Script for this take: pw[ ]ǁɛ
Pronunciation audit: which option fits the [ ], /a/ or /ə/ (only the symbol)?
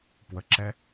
ə